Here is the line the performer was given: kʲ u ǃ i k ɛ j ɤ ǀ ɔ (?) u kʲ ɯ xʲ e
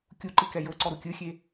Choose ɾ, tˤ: ɾ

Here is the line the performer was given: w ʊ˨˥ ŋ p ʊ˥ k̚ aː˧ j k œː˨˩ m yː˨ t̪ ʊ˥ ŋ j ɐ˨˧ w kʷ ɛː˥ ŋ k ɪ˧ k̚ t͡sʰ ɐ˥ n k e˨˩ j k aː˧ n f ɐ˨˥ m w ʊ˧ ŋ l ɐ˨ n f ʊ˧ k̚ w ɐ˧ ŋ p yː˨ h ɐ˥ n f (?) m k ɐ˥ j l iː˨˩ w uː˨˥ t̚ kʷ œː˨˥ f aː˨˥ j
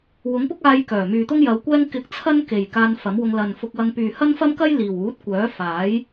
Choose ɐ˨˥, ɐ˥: ɐ˥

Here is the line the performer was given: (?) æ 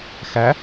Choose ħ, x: x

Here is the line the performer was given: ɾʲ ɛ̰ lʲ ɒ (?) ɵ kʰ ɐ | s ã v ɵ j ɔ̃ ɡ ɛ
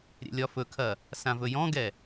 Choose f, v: f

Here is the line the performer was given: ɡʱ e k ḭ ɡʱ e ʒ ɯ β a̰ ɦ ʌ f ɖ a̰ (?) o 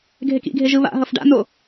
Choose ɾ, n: n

